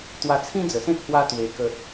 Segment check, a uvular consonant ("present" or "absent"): absent